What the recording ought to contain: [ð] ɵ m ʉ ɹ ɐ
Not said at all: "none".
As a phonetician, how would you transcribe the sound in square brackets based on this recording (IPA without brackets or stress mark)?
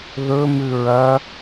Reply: ð